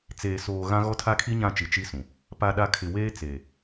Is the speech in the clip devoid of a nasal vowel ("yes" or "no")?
no